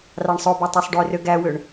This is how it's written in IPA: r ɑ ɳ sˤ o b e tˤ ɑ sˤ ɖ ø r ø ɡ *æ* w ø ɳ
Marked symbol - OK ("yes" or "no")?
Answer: yes